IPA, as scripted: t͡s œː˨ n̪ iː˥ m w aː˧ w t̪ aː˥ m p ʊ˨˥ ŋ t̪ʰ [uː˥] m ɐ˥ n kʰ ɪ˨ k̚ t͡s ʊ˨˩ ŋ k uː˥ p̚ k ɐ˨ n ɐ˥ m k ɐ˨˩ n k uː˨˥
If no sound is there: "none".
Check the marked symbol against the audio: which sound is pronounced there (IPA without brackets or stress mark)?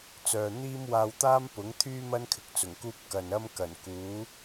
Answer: yː˥